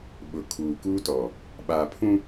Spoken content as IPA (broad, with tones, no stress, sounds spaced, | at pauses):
ɓ ʊ˨ kʰ uː˨ k uː˦ t ɔ˨ | ɓ aː˨ pʰ ũ˦